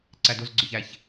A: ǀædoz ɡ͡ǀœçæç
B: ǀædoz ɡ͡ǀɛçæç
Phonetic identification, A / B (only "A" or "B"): A